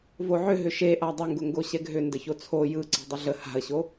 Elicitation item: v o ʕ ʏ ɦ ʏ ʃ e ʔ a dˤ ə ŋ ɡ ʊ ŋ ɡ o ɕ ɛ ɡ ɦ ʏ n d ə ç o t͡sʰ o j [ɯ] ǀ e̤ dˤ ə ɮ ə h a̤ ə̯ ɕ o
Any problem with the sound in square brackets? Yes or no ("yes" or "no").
no